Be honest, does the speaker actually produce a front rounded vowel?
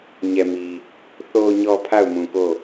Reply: no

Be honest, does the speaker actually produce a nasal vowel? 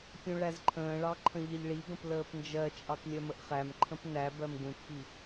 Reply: yes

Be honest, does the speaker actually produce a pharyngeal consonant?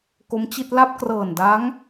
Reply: no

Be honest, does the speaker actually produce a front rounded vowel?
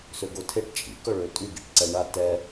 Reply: yes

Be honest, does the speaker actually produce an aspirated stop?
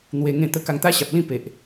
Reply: no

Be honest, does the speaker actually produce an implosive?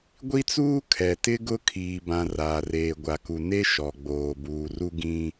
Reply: no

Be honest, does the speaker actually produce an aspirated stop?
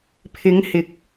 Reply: yes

